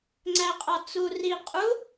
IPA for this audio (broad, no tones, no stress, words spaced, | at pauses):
ŋ͡ǀæqʼɒt͡su ri qʼu